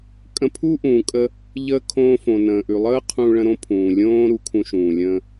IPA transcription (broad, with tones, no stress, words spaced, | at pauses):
kʼə̃˧pʰu˥ʔũː˩ kʼə˧ | ʎəː˧ kʰõː˧fõ˩nə̃ː˩ʔʉ˩ lˠəː˥qʰũ˧ ɭə̃˧ɾõ˥ pʰũː˩lʲõː˥ ɾu˧kʰũ˧ʃũː˩ lʲə̃ː˧